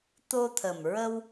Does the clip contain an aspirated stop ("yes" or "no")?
yes